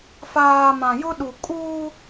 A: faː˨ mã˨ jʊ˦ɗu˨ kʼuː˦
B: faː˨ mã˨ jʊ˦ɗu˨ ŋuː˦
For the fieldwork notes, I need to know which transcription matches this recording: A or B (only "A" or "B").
A